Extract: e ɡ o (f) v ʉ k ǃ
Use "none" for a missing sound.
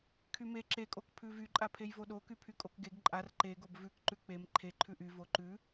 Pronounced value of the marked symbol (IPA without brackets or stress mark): b